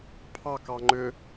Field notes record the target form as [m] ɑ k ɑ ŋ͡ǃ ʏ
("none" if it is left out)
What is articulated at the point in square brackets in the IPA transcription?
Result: pʰ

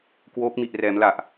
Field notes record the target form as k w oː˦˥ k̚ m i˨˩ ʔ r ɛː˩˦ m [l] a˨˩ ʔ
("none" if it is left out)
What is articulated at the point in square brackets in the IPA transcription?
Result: l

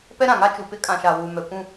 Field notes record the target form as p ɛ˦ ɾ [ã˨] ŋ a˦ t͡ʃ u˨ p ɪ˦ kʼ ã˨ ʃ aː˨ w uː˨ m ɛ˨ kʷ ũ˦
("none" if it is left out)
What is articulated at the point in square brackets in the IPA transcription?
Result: ã˨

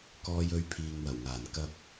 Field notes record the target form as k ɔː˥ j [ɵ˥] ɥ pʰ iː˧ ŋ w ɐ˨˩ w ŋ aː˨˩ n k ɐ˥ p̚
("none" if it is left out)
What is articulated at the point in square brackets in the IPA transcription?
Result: ɵ˥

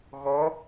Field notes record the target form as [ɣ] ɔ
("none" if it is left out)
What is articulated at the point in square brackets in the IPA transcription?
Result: ɣ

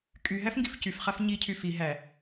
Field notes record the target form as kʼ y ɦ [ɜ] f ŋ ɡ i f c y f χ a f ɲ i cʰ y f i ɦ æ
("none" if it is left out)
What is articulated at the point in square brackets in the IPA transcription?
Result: æ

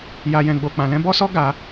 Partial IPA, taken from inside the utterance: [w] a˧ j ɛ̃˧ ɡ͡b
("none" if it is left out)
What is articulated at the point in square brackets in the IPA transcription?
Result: j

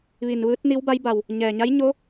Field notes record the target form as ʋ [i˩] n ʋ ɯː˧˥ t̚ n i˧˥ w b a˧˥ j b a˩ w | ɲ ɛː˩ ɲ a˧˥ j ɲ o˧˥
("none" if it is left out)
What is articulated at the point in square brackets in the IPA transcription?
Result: i˩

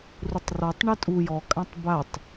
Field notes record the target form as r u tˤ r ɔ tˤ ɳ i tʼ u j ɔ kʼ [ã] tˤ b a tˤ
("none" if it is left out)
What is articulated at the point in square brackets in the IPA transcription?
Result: ã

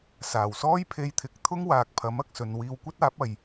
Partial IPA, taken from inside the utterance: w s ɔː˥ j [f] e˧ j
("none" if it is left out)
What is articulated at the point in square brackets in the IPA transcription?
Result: pʰ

